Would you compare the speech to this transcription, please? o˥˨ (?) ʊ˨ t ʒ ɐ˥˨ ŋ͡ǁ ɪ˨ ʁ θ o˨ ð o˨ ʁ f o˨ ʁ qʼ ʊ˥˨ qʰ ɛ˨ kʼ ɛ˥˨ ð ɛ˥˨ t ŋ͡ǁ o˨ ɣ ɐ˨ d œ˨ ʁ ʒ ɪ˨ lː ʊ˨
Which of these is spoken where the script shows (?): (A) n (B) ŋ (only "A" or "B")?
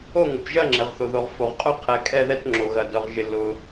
B